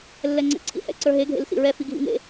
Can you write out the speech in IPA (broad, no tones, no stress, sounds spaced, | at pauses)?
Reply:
lː ɛ ŋ͡ǀ ɛ̰ ǀʰ ḭ h ɛ̰ ǀ ə˞ ɦ e ɡʱ ḛ l s ḭ ɹ ɛ f i ɡʱ ḭ ŋ ḛ